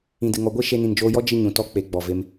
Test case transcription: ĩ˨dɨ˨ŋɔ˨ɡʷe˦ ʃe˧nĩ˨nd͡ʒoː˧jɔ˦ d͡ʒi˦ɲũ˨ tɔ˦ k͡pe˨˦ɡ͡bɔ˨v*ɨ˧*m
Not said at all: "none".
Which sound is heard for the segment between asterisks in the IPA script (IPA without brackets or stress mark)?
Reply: e˧